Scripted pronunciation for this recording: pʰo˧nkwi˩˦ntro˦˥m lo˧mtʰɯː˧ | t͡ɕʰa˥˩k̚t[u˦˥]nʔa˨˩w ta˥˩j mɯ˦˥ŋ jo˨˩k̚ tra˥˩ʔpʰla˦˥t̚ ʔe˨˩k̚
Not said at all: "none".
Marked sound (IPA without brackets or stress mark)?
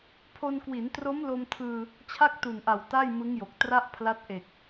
u˨˩